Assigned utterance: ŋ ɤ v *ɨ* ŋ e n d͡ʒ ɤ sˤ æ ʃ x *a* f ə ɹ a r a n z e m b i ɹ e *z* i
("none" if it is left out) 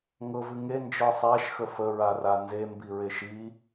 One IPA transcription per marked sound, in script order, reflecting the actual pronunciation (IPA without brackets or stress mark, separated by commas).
ɨ, ə, ʃ